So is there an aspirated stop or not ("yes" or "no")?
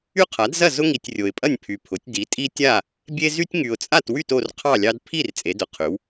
yes